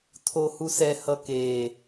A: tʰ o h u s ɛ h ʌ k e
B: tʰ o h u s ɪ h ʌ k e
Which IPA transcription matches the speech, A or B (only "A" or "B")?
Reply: A